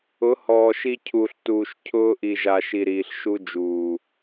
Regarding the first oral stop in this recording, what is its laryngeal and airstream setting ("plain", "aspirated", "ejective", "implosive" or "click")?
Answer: aspirated